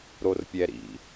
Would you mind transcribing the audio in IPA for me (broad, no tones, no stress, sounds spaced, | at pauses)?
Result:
ɾ o r pʲ ɛ ɾ ḭ